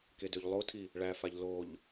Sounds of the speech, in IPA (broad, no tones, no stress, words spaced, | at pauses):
kedøʎlˠotʰi | ɭæfaʎ loʎ